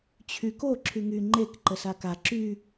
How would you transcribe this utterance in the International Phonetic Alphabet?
t͡ɕʰ y k o ǁʰ y ŋ y ŋ͡ǃ e k ǃ ə s a k a ǁ y

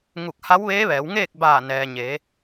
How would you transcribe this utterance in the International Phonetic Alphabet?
ŋ u˧˩ k̚ h a˧˥ w ʋ eː˧˥ ʋ ɛː˩˧ w ŋ eː˥˨ k̚ b aː˧˩ n ɛː˩ ɲ eː˩˧

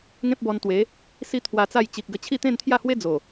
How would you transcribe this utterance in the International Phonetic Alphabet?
ŋ ẽ˦ p̚ b ɔ˧ n t̪ w e˨˦ | s i˦ t̪ʰ w a˧ t͡s a˥˧ j t͡ɕ i˨ k̚ ɡ ə˧ t͡ɕʰ i˥˧ t̪ ẽ˥˧ n t̪ʰ j a˥˧ h w e˦ d͡z o˨˩

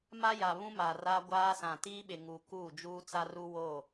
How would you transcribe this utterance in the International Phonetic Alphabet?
m a˦ j a˨ β ũ˦ m a˨ r a˦ ɡʷ aː˦ s ã˨ t iː˦ ɓ ɪ˨ ŋ u˨ k uː˦˨ d͡ʒ uː˦ t͡s a˦ r u˦ w oː˦˨

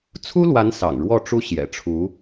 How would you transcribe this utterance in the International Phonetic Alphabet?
t͡sʰ u˥ l w a˧˥ n s ɑ̰˨˩ ŋ ɻ w ɔ˥˩ ʈ͡ʂ u˥ ɕ j ɛ̰˨˩ ʈ͡ʂʰ u˧˥

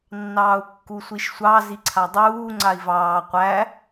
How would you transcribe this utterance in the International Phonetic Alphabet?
nː ɑː u̯ kː u sʷ i ʃ sʷ ɑ z i ǀʰ a dˤ uː ŋ͡ǀ a i̯ v ɑː qʷ æ

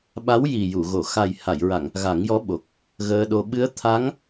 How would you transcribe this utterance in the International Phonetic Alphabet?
ɓ a˧˥ w j i˨˩ j u˨˩˨ ɣ o˨˩˨ x a˨˩ j h a˨˩˨ j ɹ a˨˩˨ ŋ | ɣ a˨˩˦ ŋ j ɔ˧˥ ɓ o˨˩ k̚ | ɣ əː˧ ɗ o˧ ɓ ɨ˧˥ ə̯ t̪ʰ a˧˥ ŋ

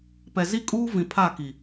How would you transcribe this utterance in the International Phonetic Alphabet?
p ɛ˨ z i˦ kʼ uː˦ v ĩ˨ pʰ a˦˨ k i˨

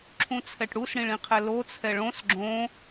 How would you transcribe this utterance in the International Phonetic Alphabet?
ǁʰ ũ t͡sʰ ɛ ʈ ɽ u s ɽ ĩ ɭ ĩ qʰ ɛ l o t͡sʰ ɛ ɭ õ s ɡ͡ǁ õ

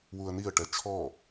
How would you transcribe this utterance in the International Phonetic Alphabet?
w u ə̯ n i ə̯ ʈ ɛ t͡ʃʰ ɔ

